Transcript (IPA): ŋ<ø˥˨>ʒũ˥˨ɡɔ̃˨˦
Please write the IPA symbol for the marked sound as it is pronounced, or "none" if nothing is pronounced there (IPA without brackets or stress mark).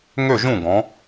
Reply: ø˥˨